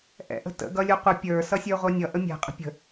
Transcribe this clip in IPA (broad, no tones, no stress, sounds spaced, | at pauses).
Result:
ʔ ɛ̰ ʔ ə̤ t ə̰ ɡ ʌ lʲ u qʷ ɪ pʲ ə˞ s ʌ sʲ ə˞ ʁʷ ɛ nʲ ʌ ʔ ə mʲ ɛ̤ qʼ ə̤ pʲ ə̤